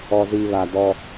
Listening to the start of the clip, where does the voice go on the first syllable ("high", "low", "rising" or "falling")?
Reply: low